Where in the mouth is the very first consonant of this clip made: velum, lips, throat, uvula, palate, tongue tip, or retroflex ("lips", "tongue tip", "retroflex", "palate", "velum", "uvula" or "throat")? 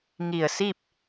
velum